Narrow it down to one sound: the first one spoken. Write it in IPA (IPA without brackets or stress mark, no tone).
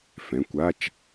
f